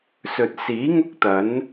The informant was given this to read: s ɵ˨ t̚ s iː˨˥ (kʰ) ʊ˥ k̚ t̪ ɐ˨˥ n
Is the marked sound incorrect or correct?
incorrect